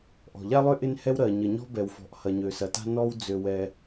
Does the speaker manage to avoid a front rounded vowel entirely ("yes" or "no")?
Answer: no